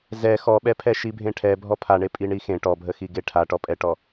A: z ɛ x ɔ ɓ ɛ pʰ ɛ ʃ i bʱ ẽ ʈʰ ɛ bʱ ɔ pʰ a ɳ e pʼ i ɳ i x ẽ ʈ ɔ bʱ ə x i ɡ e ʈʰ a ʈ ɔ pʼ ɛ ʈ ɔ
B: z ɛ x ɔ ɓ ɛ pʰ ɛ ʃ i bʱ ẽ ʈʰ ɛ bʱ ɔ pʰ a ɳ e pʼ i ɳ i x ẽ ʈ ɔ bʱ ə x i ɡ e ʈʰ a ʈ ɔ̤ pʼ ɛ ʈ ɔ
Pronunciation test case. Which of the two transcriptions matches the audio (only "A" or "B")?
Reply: A